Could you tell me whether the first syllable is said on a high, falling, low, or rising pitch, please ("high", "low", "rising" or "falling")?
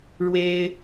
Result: high